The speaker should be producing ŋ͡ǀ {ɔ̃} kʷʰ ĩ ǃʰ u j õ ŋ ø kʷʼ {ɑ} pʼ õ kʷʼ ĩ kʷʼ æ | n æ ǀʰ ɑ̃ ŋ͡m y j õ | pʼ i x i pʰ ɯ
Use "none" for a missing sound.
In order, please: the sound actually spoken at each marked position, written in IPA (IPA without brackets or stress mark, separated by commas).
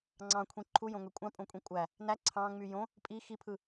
ɑ̃, ɑ̃